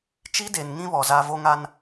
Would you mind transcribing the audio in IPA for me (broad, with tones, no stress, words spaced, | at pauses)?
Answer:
t͡ʃi˦de˨nŋĩ˦βɔ˨ za˦ vo˦ŋa˦n